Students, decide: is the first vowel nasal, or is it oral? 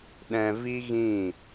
nasal